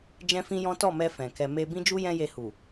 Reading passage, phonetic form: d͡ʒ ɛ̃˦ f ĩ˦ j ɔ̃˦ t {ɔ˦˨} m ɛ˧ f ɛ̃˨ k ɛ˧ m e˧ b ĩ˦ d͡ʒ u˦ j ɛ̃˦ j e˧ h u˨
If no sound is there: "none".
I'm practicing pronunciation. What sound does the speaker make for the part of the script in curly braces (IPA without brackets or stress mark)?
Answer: ɔ˦˨